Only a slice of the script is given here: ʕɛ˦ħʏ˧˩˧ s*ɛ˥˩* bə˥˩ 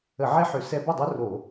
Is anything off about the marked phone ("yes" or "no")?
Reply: yes